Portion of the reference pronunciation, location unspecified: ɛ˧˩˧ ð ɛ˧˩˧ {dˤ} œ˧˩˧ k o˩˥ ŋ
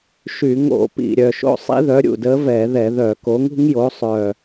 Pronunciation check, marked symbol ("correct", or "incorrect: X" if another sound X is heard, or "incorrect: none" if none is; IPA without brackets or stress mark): incorrect: ð